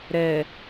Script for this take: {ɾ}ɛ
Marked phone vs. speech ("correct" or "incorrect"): correct